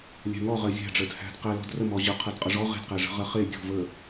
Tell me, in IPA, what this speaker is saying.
lʲ æ̤ ŋ ɔ ʁ ɜ zʲ æ̤ ɖ͡ʐ ɜ d h æ̤ d q æ l ɔ̤ d r ə m ɔ ʑ ʌ qʰ ɜ d qʼ ʌ ʐ ɔ ʁ e̤ d q æ ʐ ə̤ ʁ ɜ χ e dʲ ɔ̤ v ə

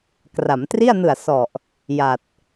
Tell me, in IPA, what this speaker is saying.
k r a˩˦ m t r i˥˩ a̯ n ɯ˨˩ a̯ s ɔ˨˩ ʔ | j a˨˩ t̚

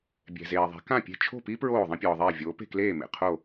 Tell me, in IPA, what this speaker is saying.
bʲ ɛ̤˩ z eː˩ ðˤ ɛ̤˩˥ k ã˥˩ pʲ e̤˥˩ t͡ʃʰ o̤˥˩ p i˥ p ɹ oː˥˩ ðˤ ĩ˥ pʲ ɔː˩ ðˤ eː˥˩ vʲ oː˩˥ p e̤˥˩ k l eː˥˩ m ḛ˩ qʰ o˥˩

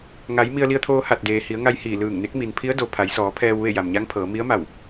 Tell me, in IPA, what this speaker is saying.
ŋ a˩˧ j m i˧ ə̯ l i˧ ə̯ t̪ʰ oː˧ h a˧˩ t̚ d eː˩ h i˩˧ ə̯ ŋ a˧ j h iː˧˩ l ɯː˧˩ ŋ n e˧˥ k̚ m i˩ n pʰ i˧˥ ə̯ d o˩ pʰ a˩˧ j s ɔː˩˧ pʰ ɛː˧ w ʋ e˥˨ j a˩ m ɲ a˧˥ ŋ pʰ ɤː˩˧ m i˧˥ ə̯ m a˧˩ w

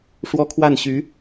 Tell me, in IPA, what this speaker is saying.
ʂ w ɔ˥ kʰ w a˥˩ n ɕ y˧˥

